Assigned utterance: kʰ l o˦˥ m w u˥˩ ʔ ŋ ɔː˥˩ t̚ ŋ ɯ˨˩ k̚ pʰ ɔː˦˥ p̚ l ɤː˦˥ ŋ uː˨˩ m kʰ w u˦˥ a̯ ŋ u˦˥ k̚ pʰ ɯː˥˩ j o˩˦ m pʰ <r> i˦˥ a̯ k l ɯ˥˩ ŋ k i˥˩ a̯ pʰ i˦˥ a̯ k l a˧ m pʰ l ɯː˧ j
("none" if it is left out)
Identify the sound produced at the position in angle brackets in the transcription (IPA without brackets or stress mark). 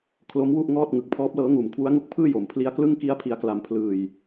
l